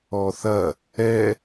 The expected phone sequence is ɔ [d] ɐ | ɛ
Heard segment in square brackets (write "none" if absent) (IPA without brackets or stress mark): θ